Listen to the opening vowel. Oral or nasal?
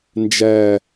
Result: oral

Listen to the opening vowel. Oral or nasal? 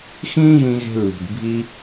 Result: nasal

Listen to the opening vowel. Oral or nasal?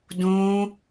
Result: nasal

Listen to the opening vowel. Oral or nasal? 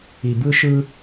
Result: oral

